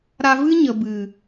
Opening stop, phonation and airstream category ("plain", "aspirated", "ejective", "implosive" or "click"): plain